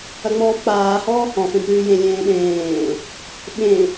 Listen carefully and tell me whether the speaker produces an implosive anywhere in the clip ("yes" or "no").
yes